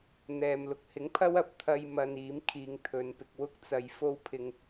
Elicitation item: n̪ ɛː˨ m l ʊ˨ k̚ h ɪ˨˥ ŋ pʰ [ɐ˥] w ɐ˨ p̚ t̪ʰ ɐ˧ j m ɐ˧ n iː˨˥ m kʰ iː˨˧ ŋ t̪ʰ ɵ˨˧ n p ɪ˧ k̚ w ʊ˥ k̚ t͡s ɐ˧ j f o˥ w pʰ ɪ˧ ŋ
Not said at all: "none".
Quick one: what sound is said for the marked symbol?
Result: ɐ˥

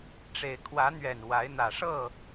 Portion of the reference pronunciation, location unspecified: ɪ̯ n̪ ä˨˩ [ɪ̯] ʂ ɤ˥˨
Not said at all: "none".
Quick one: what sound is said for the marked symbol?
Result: none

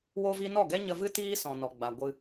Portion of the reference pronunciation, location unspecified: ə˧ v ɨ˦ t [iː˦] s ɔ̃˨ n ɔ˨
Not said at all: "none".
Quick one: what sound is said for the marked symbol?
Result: iː˦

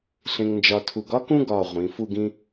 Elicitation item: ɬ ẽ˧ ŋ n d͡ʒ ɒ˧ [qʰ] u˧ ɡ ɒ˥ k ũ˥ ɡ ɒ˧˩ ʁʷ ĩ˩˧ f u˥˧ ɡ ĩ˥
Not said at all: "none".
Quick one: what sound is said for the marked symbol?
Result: tʰ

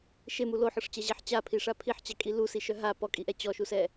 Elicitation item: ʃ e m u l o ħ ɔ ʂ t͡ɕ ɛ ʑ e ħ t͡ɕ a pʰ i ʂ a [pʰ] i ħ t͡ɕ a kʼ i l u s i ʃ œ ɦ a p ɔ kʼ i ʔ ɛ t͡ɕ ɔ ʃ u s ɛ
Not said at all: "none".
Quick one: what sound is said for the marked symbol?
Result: pʰ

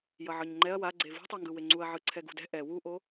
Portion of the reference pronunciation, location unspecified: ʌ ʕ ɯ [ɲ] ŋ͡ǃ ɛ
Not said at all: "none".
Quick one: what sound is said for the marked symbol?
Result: ɲ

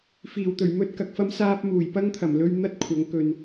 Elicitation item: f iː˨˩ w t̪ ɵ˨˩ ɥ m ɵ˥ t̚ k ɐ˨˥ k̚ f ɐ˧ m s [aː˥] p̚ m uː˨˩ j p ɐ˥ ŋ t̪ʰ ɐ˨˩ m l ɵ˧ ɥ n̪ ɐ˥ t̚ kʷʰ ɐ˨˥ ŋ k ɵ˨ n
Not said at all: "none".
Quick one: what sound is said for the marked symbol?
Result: aː˧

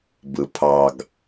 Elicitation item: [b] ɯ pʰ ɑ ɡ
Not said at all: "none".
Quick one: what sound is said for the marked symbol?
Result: b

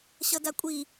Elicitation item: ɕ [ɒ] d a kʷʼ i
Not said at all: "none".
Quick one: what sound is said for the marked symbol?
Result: ʌ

